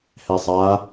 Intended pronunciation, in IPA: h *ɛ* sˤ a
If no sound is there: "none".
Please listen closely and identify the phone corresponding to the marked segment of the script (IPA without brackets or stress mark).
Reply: ɛ